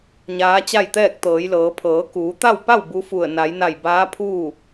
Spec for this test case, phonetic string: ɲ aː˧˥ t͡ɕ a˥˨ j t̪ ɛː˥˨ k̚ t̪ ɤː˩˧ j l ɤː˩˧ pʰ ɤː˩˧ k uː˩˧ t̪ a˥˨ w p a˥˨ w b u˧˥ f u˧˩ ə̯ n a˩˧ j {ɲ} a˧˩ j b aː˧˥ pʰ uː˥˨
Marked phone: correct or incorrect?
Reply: incorrect